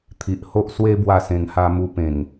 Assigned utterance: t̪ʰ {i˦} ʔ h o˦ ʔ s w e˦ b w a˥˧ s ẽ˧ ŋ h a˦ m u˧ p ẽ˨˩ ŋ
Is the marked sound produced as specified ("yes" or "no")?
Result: no